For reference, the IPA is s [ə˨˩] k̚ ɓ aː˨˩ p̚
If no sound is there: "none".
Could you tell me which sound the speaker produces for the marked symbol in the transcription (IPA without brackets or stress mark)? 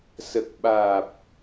ə˨˩